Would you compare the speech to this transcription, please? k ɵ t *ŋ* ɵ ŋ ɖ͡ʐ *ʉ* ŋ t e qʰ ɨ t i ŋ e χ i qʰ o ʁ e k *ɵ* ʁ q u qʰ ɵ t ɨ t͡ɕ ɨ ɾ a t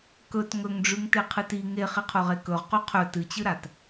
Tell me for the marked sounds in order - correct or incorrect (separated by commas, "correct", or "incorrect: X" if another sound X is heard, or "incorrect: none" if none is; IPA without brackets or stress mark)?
correct, correct, correct